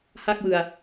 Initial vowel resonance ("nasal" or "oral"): oral